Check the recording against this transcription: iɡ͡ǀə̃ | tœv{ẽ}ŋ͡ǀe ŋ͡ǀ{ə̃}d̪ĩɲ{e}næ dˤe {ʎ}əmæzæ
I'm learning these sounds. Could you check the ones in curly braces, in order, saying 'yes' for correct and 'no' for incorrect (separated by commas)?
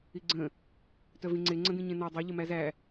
no, yes, no, yes